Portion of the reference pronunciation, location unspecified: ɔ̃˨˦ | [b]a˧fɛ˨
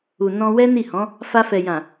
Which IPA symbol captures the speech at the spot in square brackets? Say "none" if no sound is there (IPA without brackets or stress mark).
f